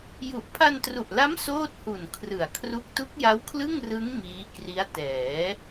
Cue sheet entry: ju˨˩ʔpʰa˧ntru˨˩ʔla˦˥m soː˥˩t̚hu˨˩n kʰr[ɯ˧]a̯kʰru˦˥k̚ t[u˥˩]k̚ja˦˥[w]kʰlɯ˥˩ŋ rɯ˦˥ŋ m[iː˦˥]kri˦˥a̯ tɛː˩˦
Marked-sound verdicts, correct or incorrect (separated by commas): incorrect, incorrect, correct, correct